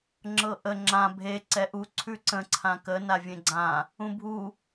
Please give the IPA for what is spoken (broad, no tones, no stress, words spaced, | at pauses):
ŋ͡ǁɤʔə ŋ͡ǁã bʱe ǀɛʔu ǀʰʉǀə̃ ǀʰãkə navʲẽɡ͡ǀã | ũbʱu